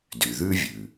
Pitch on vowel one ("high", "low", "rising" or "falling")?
low